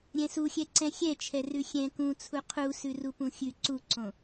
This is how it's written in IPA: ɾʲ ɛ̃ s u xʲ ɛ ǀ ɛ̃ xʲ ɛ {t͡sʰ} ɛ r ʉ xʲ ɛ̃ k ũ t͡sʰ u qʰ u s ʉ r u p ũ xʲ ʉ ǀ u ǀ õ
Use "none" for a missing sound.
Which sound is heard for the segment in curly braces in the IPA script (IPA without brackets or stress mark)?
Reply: t͡ʃʰ